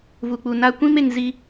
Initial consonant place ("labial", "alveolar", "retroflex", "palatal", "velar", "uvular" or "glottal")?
labial